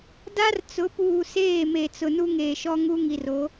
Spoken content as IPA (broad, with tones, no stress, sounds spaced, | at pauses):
d a˦ r t͡s ʊ˨˦ p uː˨ s eː˦˨ m e˨ t͡s ʊ˨ n u˦ ŋ eː˨ ʃ ɔ˦ ŋ u˦ ŋ i˨ r o˨˦